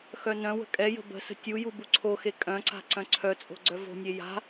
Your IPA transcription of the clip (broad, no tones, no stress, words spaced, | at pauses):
xœnœ̃wə̤ kʼɛjə̤ bə̤sə̤ tʲuju buǀʰoxe kʼœ̃ǀa̤ ǀœ̃ǀʰœt͡sʼo̤ ɡ͡ǀœvo̤nʲe ja̤